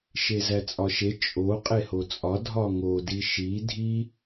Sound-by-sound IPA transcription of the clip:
ʃ e z æ t͡sʼ ɒ ʃ e t͡ʃʼ o qʼ e h o t͡sʼ ɒ dʱ ɒ ŋ o d i ʃ i dʱ i

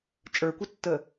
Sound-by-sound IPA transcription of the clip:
t͡ʃʼ ə˞ kʷ ɘ tː ə

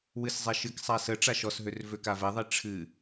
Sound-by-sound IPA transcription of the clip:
w ɨ s zˤ ɛ ʃ ɨ k sˤ a s ə ʈ͡ʂ a ʃ ɔ s ɦ ø r v ø k a v ɛ ðˤ i ʈ͡ʂʰ ɨ

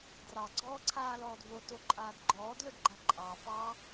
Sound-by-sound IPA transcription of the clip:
d r ɑ ɡ͡ǀ ɔː ǀʰ aː l ɔː d v o t o ǃʼ aː d ɡ͡ǃ ɔː d l ɵ d ɡ͡ǃ a ǃʼ ɑ f ɑ

